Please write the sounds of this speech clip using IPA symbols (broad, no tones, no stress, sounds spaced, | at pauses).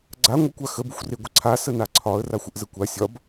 ɡ͡ǀ a ŋʷ ə kʷ a x ə b u xʷ r e ɡʷ ə ǀʰ a s ə n a ǀʰ ɒ ə̯ r a xʷ ə ʔ z ə kʷ a sʲ ɒ b